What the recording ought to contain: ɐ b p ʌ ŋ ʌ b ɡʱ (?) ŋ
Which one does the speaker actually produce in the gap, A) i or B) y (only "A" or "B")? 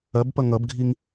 A